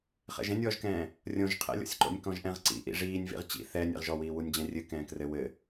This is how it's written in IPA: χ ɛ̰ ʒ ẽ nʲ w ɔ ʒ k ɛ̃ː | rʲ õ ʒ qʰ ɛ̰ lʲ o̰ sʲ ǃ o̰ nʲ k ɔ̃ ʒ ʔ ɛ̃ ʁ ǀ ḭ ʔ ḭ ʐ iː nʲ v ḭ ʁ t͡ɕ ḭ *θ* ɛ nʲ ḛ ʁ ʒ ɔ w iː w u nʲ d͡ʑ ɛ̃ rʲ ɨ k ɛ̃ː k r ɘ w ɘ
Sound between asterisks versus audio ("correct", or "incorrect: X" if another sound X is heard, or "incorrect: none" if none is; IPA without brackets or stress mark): correct